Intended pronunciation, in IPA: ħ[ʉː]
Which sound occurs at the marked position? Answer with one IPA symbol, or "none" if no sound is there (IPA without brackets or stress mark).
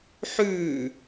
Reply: ʉː